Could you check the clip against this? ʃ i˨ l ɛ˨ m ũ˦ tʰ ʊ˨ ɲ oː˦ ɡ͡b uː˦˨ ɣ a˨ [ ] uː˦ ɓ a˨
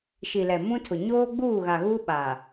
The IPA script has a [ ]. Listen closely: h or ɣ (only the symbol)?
ɣ